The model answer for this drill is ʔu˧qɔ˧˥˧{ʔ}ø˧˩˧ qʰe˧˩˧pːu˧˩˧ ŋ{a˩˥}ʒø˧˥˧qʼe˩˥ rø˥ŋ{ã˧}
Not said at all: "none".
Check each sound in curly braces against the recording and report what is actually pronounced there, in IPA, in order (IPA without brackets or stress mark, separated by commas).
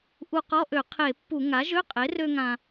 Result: ʔ, a˩˥, ã˧